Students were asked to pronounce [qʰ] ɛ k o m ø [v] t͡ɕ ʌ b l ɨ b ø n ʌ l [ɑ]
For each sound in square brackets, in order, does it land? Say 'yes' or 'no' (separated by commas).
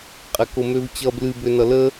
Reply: no, yes, no